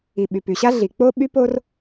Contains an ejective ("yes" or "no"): no